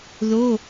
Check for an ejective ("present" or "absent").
absent